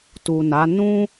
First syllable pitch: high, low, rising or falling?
low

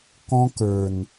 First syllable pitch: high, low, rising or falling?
high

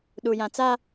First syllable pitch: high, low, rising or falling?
low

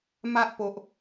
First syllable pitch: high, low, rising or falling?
high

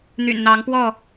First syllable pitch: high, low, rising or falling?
low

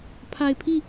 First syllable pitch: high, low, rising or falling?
low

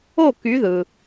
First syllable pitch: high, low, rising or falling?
falling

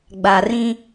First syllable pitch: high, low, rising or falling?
low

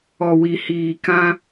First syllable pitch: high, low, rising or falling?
low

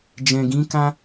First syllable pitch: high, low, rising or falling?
low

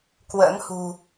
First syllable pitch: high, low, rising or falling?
rising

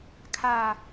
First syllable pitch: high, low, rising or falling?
low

